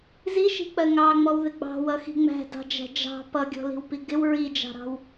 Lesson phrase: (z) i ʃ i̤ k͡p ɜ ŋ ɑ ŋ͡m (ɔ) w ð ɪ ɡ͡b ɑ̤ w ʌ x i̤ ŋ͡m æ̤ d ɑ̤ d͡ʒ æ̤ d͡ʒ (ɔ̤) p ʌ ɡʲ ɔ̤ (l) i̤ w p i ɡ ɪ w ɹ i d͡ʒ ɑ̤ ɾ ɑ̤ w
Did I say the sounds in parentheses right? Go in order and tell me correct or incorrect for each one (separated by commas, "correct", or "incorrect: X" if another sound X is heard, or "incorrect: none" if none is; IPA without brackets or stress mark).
correct, correct, incorrect: ɑ̤, correct